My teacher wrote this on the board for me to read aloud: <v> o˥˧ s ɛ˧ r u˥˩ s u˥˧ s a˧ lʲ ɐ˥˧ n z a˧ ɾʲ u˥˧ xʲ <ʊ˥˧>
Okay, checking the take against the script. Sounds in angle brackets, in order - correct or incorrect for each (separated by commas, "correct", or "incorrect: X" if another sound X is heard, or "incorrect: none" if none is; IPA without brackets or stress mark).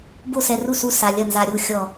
incorrect: b, incorrect: ɔ˥˧